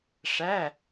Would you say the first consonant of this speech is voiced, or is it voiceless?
voiceless